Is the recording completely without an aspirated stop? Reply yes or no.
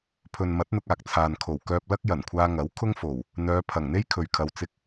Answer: no